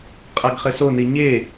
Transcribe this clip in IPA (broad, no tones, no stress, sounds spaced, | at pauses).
qʼ a ɡ χ ɘ s o n i ɲ e